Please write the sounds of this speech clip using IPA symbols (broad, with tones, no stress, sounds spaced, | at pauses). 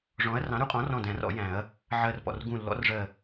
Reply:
ʐ ɔ̃˨˥ ɐ̯ r ɑ̃˨˥ ɾ u˨˩˦ qʼ ɔ̃˨˥ r ɔ̃˧˩ d æ̃˨˩˦ r ɔ̰˨˩˦ j æ̃˨˩˦ ɐ̯ | ʕ ɜ˧˩ r p ɔ̰˧˩ r ɡ ũ˧˩ lː ɔ̰˨˥ r ʐ ɜ˧˩